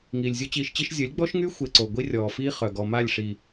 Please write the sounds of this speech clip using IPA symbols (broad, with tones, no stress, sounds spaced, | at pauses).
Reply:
ŋ iː˨ lʲ zʲ o˦ t͡ɕ iː˧ ʃ t͡ɕ i˦ ʃ zʲ ə˨˦ lʲ ɡ͡b ɔ˦ ʃ ŋ y˦ xʷ e˧ ǀ o˨ ɡʷ i˦ rʲ ɔː˨ f iː˦ χ œ˨ ɡ ɔ˨ m a˦˨ lʲ ʂ i˨